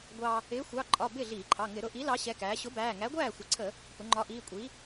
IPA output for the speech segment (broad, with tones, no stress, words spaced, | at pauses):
ɡʷɑ˧ | ɪː˨˥xʷɑ˩˧˩ ǃʼɒ˩˧˩ bɪː˥˩ɮiː˧˩˧ǃʰɑ˩˧˩ ŋɪ˧˩˧ɾʊ˩˧ʔi˨˥ lɑ˨˥ɕɛ˩˧˩ kæː˩˧ɕʊ˨˥bæː˩˧˩ ŋæ˨˥ɡʷæː˥˩xʷə˩˧˩ǀʰə˧˩˧ | pʊ˩˧ŋ͡ǃɒ˨˥ʔiː˩˧˩kʷʼi˨˥